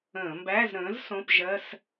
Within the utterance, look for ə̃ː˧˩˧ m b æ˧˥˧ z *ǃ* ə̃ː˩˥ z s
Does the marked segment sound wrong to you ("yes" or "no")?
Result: yes